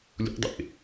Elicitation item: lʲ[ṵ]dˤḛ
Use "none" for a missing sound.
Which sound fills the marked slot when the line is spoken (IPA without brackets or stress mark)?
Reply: ṵ